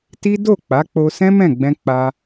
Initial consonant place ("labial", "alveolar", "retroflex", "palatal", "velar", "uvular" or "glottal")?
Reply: alveolar